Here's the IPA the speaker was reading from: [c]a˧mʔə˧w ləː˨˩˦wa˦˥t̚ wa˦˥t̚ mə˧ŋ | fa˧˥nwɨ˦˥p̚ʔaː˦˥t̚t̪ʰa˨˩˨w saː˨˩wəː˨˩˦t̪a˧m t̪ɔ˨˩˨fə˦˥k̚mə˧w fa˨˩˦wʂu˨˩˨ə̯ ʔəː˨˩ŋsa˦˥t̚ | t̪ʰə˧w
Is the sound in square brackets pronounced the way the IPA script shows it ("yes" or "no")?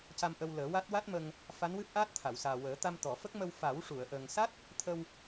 yes